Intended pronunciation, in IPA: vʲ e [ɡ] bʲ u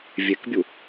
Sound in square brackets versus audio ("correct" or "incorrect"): incorrect